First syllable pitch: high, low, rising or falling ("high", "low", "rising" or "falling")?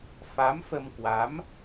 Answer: rising